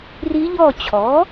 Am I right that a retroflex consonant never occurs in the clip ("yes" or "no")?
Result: yes